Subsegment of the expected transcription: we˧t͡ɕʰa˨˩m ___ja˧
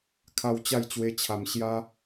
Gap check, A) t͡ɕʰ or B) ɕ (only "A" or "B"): B